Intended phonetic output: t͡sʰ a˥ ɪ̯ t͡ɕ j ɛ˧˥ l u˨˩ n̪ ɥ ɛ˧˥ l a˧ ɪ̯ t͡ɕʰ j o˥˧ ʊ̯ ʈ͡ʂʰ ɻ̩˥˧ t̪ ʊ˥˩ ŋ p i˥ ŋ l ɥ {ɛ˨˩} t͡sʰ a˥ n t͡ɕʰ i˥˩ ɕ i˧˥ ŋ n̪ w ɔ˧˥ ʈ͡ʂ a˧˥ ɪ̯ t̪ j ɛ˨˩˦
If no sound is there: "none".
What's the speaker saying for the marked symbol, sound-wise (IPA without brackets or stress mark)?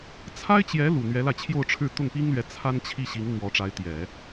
ɛ˧˥